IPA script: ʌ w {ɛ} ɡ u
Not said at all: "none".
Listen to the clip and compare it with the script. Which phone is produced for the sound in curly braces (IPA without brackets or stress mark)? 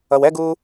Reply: ɛ